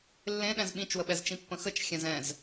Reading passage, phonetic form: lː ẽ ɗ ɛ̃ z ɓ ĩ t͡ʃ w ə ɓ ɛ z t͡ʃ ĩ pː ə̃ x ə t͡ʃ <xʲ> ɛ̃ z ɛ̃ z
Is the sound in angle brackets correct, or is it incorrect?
correct